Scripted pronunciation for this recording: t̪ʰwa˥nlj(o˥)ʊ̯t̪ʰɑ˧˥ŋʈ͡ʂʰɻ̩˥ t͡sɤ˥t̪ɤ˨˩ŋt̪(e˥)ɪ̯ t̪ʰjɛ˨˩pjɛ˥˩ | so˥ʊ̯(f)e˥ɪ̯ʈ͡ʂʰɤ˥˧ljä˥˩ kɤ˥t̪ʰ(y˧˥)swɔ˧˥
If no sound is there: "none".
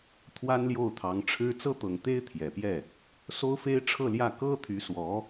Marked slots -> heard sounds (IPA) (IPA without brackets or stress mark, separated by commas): o˥˩, e˥, f, y˧˥